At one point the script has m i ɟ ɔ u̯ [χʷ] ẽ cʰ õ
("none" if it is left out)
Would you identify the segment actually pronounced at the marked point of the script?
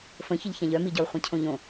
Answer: χʷ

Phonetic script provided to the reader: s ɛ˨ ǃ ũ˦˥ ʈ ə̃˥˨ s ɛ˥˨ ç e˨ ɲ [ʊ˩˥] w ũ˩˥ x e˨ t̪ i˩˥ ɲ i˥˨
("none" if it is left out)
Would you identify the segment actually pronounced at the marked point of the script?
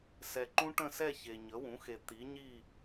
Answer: ə˩˥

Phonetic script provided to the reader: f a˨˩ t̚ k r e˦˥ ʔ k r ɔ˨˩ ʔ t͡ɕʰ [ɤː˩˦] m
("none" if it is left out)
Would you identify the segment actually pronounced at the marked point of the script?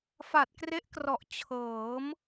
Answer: ɤː˩˦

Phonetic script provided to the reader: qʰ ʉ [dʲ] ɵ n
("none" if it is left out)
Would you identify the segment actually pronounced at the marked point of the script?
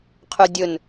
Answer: dʲ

